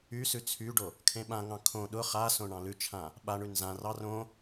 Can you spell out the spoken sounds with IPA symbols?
y s ʉ t͡sʰ y ɖ o | kʰ ẽ ɓ ã ŋ ɑ̃ kʰ õ ɗ ʊ χ a s õ ɳ ɑ̃ l ʉ t͡ʃʰ ã | ɓ a ɳ ʉ n z ã r ɑ r õ

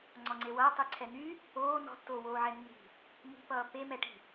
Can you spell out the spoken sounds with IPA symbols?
ŋ͡ǀ ɔ ŋ͡ǀ e w ʌː tˤ y ǀʰ ɛ n̪ y | oː n ɔ̤ tː oː w oː ʕ ɛ nː i̤ | m i̤ p ʌː p e m ɛ ʈ i̤

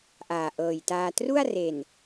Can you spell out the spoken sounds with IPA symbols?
ʔ aː˨˩ ʔ ɤː˨˩ j t aː˧ t r u˥˩ a̯ r e˨˩ n

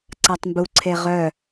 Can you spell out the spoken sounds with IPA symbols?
ǀ a tˤ m b u ǀʰ e ʁ œ

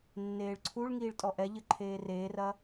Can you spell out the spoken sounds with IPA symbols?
nː eː ɭ ǀʰ u ɭ ŋ iː ɭ tʼ ɔ ʔ ɛ ʎ ɘ ǃʰ eː r eː r ɐ

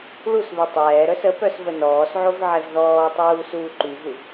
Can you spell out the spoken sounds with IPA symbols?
ɭ u s β i tˤ ɛː ɾ œ s ə p œ s v ə n ɔː s ʕ o v ʕ ɛ v ð ɔː tˤ uː s uː ǃ y ɣ u v

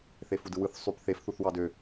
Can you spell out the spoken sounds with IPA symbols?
θ e f u d ɯ w ɯ θ sˤ y p θ e f θ u θ w ɑ d ø

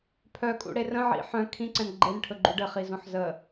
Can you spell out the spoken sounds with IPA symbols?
pʰ œ kʼ ṵ ɽ e r ə̃ ʕ ḭ ħ œ̃ kʰ ĩ ǀ ɛ̃ n ɡ͡ǃ e n ʈʰ ɵ ɡ͡ǃ u ɖ ɘ χ i z õ ħ z ə

